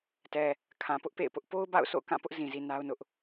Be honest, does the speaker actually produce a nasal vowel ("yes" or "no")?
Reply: yes